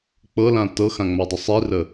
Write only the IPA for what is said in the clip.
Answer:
k͡pɤlã tɤxãŋ͡madˤə sˤirə

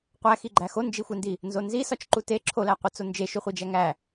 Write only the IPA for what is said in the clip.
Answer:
qʷæxiɡ͡ǃæ xond͡ʒixʷendi | nzonzi sɒt͡ʃǃute ǁʰolæ qʷet͡sond͡ʒe ʃuχʷid͡ʒæŋæ

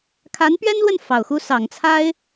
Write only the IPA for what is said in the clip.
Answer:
kʰa˧˥npɥɛ˥nlwə˥˩n fɑ˨˩ʊ̯xu˥ sɑ˨˩ŋt͡sʰa˥ɪ̯

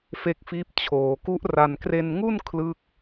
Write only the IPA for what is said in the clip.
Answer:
fe˦˥k̚fiː˦˥p̚ t͡ɕʰoː˩˦ku˦˥ʔra˧n kre˧nŋu˥˩n kʰlɯ˥˩k̚

